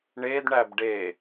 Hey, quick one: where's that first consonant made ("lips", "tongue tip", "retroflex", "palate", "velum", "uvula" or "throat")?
retroflex